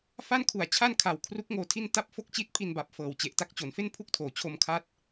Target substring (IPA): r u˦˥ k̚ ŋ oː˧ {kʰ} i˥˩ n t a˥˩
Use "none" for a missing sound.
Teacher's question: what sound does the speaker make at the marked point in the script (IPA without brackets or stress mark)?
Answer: tʰ